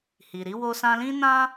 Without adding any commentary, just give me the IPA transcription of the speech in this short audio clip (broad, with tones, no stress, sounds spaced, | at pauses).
h i˨ ɾ i˨˦ w o˦ s ã˦ l ĩ˦ n ã˦